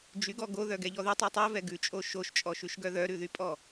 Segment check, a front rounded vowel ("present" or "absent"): present